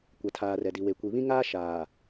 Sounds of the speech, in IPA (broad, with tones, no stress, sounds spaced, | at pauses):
kʷ a˨ tʰ aː˨ r ɛ˨ d i˨ w e˨ kʷ i˨ β ĩ˦ ŋ aː˦ ʃ aː˨